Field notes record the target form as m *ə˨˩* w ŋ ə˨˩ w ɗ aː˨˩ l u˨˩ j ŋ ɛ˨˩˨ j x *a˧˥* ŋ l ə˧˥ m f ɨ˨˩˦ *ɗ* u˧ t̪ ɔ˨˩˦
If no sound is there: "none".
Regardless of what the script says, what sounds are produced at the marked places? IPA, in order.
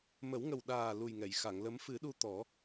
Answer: ə˨˩˦, a˨˩˨, ɗ

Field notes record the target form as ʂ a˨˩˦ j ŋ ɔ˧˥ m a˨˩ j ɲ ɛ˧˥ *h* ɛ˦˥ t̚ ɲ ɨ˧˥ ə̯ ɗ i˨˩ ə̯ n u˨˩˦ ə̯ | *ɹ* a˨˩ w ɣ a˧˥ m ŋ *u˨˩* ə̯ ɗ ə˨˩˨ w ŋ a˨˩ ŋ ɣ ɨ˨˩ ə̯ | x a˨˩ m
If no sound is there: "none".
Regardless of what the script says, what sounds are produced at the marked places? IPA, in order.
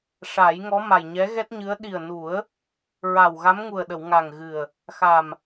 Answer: ɣ, ɹ, u˨˩

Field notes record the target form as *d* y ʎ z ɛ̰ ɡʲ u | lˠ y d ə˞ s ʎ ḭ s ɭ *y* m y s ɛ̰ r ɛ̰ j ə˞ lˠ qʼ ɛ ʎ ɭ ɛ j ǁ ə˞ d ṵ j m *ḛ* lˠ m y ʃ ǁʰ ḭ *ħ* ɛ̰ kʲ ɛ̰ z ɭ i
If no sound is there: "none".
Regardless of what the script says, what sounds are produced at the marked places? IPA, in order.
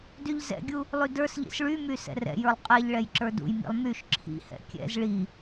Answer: d, y, ḭ, h

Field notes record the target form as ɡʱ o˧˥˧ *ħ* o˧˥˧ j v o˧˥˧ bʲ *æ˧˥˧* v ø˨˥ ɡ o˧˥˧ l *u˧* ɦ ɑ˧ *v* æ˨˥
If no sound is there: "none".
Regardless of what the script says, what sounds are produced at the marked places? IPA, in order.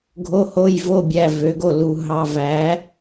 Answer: h, æ˧˥˧, u˧, v

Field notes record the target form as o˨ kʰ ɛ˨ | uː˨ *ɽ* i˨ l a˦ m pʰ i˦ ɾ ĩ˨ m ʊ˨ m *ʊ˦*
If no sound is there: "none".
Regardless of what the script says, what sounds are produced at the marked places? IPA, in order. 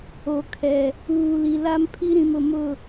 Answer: l, ʊ˦˨

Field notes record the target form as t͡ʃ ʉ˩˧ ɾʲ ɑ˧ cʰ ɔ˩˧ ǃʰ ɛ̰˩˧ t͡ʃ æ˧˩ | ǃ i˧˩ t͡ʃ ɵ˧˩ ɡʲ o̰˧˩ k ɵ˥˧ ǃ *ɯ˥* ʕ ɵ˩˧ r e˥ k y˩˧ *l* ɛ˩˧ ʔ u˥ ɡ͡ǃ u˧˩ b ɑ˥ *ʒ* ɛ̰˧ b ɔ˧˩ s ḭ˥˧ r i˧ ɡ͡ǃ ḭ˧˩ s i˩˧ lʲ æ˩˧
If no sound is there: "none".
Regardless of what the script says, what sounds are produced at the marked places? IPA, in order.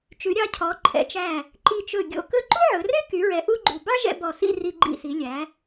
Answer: u˥, ɹ, ʒ

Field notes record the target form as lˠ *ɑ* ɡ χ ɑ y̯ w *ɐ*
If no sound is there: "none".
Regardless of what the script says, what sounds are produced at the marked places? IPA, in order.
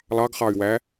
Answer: ɑ, æ

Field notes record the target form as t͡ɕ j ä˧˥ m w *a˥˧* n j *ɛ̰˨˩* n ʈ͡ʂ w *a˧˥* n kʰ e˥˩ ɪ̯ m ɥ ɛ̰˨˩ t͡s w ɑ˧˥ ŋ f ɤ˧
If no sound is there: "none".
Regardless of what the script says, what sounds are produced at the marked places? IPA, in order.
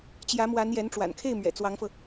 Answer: a˧˥, ɛ˧˥, a̰˨˩

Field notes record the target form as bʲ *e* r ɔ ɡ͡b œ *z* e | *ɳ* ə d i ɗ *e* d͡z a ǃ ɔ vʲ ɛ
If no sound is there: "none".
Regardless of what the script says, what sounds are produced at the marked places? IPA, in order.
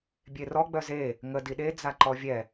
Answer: e, z, ŋ, e

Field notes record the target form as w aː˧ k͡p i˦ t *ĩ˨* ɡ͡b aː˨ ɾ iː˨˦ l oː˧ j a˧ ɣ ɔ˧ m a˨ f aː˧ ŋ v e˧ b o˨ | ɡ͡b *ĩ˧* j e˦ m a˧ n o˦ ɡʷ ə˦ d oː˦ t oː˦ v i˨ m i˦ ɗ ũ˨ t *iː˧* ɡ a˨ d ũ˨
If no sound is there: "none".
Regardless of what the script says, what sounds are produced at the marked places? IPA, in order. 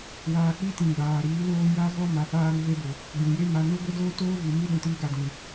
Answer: ĩ˨, ĩ˨, iː˧

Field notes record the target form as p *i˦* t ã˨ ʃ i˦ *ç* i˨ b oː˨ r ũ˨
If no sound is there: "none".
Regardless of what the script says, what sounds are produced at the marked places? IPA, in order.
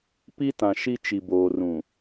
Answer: i˦, t͡ʃ

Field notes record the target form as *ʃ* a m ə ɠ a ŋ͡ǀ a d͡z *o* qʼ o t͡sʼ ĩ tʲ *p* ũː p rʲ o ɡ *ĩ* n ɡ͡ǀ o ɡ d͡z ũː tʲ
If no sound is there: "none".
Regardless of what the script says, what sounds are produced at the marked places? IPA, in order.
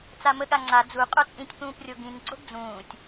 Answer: t͡s, u, p, ĩ

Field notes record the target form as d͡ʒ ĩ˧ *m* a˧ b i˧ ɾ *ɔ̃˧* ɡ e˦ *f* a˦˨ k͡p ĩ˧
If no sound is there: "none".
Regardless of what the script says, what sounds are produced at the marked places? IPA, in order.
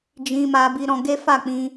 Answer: m, ɔ̃˧, f

